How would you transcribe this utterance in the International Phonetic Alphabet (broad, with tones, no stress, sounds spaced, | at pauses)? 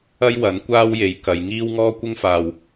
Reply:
ɐ˥ j w ɐ˨˥ n kʷ aː˥ w j e˨˥ j k ɐ˨˧ j ŋ iː˥ w ŋ ɔː˥ kʷ ɪ˥ ŋ f aː˨ w